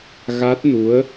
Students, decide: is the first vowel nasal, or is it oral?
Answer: oral